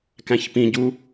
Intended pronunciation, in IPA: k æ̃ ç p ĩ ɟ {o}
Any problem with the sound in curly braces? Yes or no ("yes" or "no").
yes